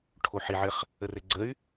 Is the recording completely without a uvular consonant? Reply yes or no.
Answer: no